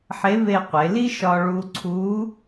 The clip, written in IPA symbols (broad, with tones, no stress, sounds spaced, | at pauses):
ħ e˧˥ v e˧ qʷ e˩˧ l i˥ ʃ ɒ˧ ɭ u˧ ǀʰ u˧˥